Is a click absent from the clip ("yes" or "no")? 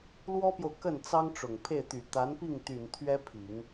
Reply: yes